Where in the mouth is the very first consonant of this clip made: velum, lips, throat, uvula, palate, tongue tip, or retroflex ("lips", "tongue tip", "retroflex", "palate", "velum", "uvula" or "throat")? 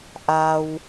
throat